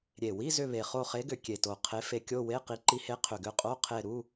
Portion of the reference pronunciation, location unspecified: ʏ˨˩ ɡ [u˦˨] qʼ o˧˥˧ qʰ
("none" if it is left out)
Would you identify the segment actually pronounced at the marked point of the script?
ʏ˦˨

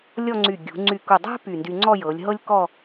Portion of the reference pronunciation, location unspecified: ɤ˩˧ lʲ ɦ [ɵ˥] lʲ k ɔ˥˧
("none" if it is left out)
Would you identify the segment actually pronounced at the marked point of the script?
ɤ˥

